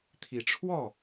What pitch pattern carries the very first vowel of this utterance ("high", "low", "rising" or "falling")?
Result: rising